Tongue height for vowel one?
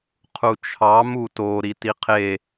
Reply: high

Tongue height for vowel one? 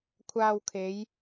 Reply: low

